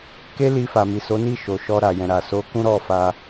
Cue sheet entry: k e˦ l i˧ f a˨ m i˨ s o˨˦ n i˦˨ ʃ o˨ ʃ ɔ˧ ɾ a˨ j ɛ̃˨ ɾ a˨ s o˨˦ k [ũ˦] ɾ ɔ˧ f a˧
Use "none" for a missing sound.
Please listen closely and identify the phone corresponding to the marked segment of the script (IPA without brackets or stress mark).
ũ˦